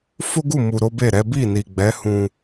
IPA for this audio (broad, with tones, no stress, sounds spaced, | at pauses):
f o˦ ɡ u˦˨ m u˨ ɾ o˨˦ b e˦˨ ɾ ɛ˨˦ b i˦˨ n i˨ ɡ͡b ɛ˨˦ h ũ˧